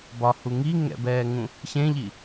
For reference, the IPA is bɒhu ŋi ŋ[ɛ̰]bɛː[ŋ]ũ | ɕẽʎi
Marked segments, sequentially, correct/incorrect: correct, correct

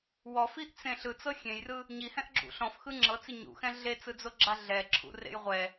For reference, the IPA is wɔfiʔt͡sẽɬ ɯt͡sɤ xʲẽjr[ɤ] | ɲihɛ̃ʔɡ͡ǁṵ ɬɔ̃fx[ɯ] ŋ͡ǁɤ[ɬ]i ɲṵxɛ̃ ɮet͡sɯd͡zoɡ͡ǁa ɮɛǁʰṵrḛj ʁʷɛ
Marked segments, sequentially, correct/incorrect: incorrect, correct, incorrect

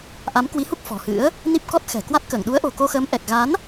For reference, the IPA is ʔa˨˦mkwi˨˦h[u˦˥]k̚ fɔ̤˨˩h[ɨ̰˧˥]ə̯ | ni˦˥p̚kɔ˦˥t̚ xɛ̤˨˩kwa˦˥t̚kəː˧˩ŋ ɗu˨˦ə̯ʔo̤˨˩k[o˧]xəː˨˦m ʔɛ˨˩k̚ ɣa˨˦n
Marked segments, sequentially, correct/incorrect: correct, correct, correct

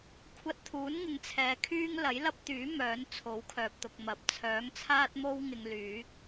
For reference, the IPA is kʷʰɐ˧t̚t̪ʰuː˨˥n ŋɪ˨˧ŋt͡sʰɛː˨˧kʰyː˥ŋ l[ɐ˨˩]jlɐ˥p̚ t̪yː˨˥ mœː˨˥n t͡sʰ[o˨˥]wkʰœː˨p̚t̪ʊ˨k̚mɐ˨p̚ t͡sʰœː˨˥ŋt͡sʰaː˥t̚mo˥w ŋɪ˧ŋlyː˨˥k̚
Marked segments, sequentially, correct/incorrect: incorrect, correct

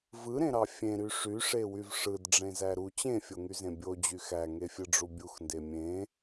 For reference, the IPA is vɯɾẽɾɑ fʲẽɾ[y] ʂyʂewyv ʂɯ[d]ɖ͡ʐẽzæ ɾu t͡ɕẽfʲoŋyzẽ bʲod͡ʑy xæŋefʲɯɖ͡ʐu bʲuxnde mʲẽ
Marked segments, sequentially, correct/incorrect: correct, correct

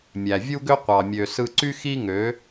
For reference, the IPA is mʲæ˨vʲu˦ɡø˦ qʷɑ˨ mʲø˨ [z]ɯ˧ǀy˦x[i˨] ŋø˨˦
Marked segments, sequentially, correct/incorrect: incorrect, incorrect

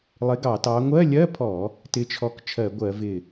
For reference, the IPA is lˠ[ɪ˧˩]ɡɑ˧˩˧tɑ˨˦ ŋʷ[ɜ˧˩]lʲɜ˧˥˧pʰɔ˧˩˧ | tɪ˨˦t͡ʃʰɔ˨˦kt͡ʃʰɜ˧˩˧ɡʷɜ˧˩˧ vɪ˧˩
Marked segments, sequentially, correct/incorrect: incorrect, incorrect

